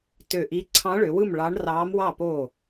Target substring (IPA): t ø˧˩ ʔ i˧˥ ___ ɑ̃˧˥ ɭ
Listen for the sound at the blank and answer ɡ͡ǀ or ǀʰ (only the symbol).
ǀʰ